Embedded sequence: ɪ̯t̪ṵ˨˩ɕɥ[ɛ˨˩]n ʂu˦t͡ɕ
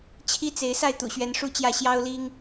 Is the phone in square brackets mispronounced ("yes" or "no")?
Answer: yes